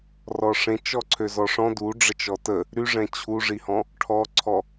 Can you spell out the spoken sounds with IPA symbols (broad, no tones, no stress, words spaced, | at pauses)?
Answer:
rɔʂẽt͡ʃ ɔǀʰøzɔʂɔ̃ duɖ͡ʐət͡ʃ ɔtə | ɾyʐɛ̃ t͡ɕʰuʐihɔ̃ | ʈʰɔǀʰɔ